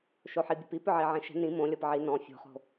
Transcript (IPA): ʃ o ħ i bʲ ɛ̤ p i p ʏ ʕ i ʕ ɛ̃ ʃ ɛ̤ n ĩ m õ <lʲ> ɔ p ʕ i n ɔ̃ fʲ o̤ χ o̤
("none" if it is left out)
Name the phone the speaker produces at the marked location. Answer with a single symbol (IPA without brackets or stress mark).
lʲ